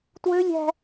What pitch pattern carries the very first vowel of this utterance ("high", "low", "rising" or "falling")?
high